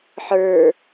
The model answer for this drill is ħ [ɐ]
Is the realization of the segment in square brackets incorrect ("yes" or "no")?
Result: yes